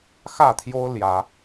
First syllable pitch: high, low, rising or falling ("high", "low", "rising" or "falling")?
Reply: falling